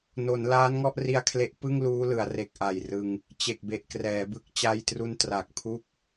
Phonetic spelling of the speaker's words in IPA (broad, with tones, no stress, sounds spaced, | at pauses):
n o˩˦ n l aː˦˥ n ŋ ɔ˥˩ ʔ r i˧ a̯ kʰ l e˦˥ ʔ p ɯ˥˩ ŋ l uː˦˥ l ɯ˩˦ a̯ r e˨˩ k̚ ʔ a˨˩ j r ɯ˧ ŋ | t͡ɕ e˨˩ k̚ b e˨˩ ʔ k r ɛː˩˦ b ɯ˦˥ k̚ t͡ɕ a˧ j t r u˧ n t r a˨˩ k̚ pʰ u˥˩ k̚